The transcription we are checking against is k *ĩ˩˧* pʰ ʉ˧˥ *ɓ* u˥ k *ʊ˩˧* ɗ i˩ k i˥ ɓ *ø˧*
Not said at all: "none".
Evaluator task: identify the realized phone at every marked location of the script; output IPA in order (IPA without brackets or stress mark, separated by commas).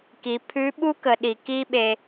i˩˧, ɓ, ə˩˧, e˧